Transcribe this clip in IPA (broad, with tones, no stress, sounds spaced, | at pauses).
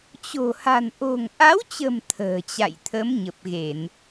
t͡ɕ o̤˨˩ h a̤˨˩ n ʔ o̤˨˩ ŋ ʔ a˨˦ w t͡ɕ ə̤˨˩ m t̪ʰ ə̤ː˨˩ t͡ɕ a̰˧˨ j t̪ʰ ə˨˦ m ɲ ə˨˩ p̚ ɣ e˧˩˨ n